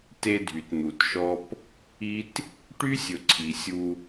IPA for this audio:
t e˦ dʱ y˨ t n̪ u˨ t ʃ ɔ˦ p | i˦ t | ʈ y˦ sʲ ɵ˨ ǀʰ i˨ sʲ u˦

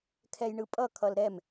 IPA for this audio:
kʰ ɛ j ɳ ɯ pʼ ʌ kʰ ʌ l ɾ ɛ m

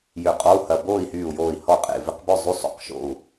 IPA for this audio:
j ø˧˩ qʼ ɔ˧˥˧ u̯ h ɐ˧˩ b oː˥˨ i̯ h yː˧˩ u̯ j oː˧˩ i̯ h ɔ˥˨ qʼ ḛ˧˩ v ɪ˧˥˧ q b œ˥˨ zˤ y˧˥˧ sˤ o̰˧˩ q ʃ o̰˧˩ u̯

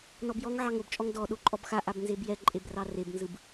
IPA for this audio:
n ɔ b j ɔ ŋ ʕ ɑ ŋ o b t͡ʃʼ ɔ ŋ d ɔ ɗ o ǃʼ ɔ b x a ʔ a b n z e b j ɛ ǃʼ e b r ɑ r e b n z ɯ b

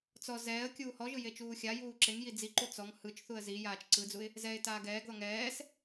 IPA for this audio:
t͡s ɔ z ɛː ə̯ kʲ uː h ɔ ʒ ɯ j e t͡ʃ uː xʲ a j uː ǁ e ŋ j i d͡z i ǃ u t͡s ɔ ŋ h ɯ t͡ʃ θ u ə̯ z i j aː t͡ʃ ǀ ɯ d͡z u ɪ̯ | z ɛ ɪ̯ t aː ɡ ɛː ɡ ð ɔ ŋ ɛː s

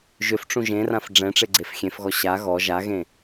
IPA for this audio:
ʒ ʏ f ʈ͡ʂ ũ ʒ ẽ r ã f ɖ͡ʐ ɛ̃ ʈ͡ʂ e ɡ͡ǀ e f xʲ ẽ f ɣ ɔ ɕ a ɣ ɔ ʒ a ɣ ẽ

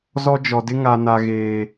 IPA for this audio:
z ɔ˦ d͡ʒ ɔ˨ d ɪ˦ ŋ a˨ n a˨ ɣ eː˨

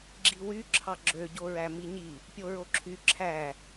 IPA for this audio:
ɡ͡ǁ i w y ǁʰ ɑ ɡ͡ǁ ø ɟ o ɹ æ m i ɲ i | pʲ o ɹ o ǁʰ y ǁʰ æ

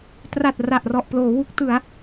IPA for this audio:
t r a˨˩ t̚ r a˨˩ ʔ r ɔ˨˩ ʔ p l oː˩˦ w u˦˥ k̚ t ɯ˩˦ a̯

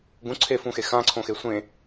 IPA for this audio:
ɡ ũ ǀʰ e f ũ x e x ã ǀʰ õ x e sʷ ẽ

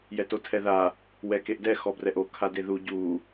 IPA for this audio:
j ɛ t o tʰ ɛ ð a | w ɛ k e ʔ d ɛ x ɔ b r ɛ ʔ o kʰ a d e ð u ɟ u

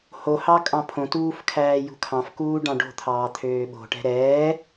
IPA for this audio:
h o h ɑ kʼ ɑ̃ pʰ õ t uː f kʰ æː j ṳ kʰ ɑ̃ f k uː ɖ ɑ̃ ɖ o̤ t̪ʰ ɑː t̪ʰ øː ɓ o̤ ʈ ɛ̤ ɾ ɛː

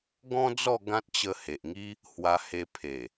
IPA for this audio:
ɡ ɔ̃˦ d͡z ɔ˥˧ ɡ ã˦ t̚ t͡ɕ ə˧ h e˨ ʔ ŋ i˦ | h w a˧ h e˧ pʰ e˨˩

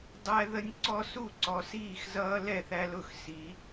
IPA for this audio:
dˤ æ˦ ð ə˦ nʲ ǀ ɔ˦ s u˥˩ ǀ ɔ˨˦ s iː˥˩ x z ʌː˦ l ɛ˥˩ θ æ˦ l ʊ˥˩ x s i˨˦

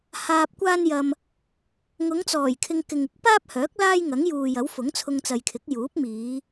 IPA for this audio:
h aː˧ p̚ kʷ aː˥ n j ɐ˧ m | ŋ ʊ˨˧ ŋ t͡s ɔː˨˩ j kʰ ɪ˧ ŋ k ɪ˨ ŋ ɪ˨˥ k̚ p aː˥ p̚ h œː˨˥ k̚ l aː˥ j ŋ ɐ˨˥ ŋ j uː˨ j ɐ˨˥ w f ʊ˨˥ ŋ t͡sʰ ʊ˧ ŋ t͡s ɐ˨ j kʰ ɪ˨˥ k̚ j uː˨˥ p̚ m iː˨˧

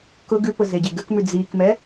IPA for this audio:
k ʊ ɡ ʉ p ʊ z e ɟ e ɡ ə k m ʉ d͡z i k m ɛ

